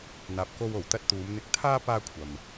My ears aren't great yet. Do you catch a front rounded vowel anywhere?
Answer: no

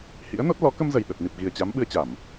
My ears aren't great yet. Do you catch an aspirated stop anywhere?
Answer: no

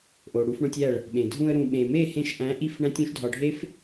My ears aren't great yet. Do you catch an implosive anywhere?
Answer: yes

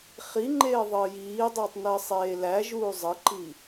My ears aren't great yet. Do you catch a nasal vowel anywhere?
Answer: no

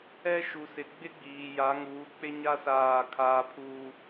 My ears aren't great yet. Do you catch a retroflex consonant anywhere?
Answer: no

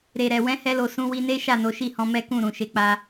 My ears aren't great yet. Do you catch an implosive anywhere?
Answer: no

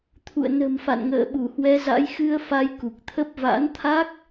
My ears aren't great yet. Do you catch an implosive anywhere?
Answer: yes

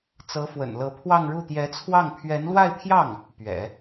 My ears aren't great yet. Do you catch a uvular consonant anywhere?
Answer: no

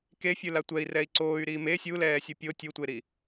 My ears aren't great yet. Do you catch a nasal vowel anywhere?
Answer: no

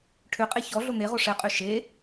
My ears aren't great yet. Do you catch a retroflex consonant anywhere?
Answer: yes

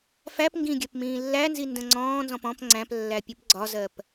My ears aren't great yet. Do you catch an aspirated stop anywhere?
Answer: no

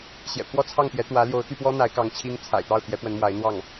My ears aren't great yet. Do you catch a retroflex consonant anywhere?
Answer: no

